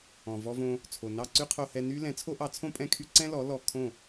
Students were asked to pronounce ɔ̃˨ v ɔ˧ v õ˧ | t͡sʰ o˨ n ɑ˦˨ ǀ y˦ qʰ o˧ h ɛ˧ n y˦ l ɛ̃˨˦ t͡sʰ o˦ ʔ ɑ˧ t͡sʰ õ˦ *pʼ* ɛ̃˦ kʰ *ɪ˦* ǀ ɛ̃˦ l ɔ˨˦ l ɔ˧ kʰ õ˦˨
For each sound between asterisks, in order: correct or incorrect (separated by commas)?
correct, incorrect